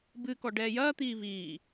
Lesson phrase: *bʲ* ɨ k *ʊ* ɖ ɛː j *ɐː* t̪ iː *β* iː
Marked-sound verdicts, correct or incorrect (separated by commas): incorrect, incorrect, correct, correct